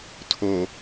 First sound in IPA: tʰ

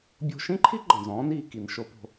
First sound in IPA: bʲ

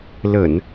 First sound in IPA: l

